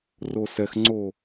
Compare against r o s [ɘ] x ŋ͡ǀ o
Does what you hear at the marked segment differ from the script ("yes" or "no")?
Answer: yes